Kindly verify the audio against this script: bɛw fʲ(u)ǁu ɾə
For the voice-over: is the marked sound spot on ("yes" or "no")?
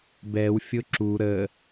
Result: no